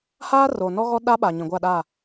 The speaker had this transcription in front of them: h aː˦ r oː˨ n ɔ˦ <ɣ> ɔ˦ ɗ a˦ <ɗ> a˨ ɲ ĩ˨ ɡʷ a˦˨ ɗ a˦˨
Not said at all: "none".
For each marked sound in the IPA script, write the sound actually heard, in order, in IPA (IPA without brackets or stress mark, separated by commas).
ɣ, ɓ